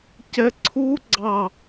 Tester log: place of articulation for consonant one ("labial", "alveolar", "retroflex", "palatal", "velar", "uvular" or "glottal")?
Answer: palatal